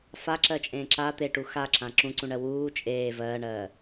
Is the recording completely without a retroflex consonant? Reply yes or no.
no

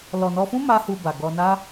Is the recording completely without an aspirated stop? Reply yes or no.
yes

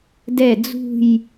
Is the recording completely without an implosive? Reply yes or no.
yes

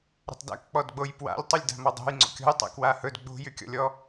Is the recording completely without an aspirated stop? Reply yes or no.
yes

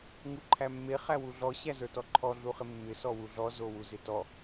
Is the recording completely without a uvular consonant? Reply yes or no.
no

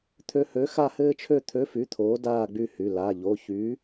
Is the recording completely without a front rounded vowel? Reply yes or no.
no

